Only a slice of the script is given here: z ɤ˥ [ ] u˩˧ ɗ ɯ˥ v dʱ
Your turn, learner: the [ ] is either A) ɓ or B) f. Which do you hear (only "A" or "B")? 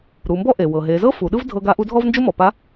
B